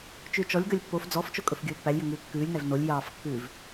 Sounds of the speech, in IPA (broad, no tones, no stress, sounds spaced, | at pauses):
t͡ʃ ʉ t͡ʃ ɔ lʲ ɡ œ lʲ pː o f d͡z ɔ f t͡ʃ o kʼ ɵ f ɡʲ ɵː pː æ lʲ j ɵ ŋ ʉː kː ʉː lʲ n æ v n o lʲ j ɑː f kː ʉː v